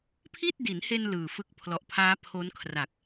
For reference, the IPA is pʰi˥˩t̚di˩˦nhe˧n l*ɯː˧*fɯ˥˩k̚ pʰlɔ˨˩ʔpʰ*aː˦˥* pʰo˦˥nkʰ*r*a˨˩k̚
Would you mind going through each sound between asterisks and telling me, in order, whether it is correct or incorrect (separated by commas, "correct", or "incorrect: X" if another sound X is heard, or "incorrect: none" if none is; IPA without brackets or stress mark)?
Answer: incorrect: ɯː˨˩, correct, correct